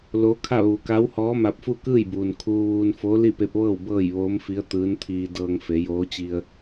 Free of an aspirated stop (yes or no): no